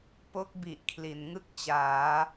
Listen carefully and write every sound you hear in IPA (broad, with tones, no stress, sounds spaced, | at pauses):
p o˦˥ k̚ b i˨˩ ʔ kʰ l i˩˦ n ŋ ɯ˥˩ k̚ t͡ɕ aː˩˦